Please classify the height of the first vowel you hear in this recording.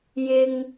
high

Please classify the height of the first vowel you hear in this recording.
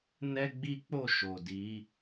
mid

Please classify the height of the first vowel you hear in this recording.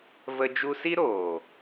mid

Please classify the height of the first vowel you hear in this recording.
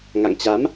low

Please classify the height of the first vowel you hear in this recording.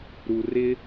high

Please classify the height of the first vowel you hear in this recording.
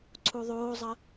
high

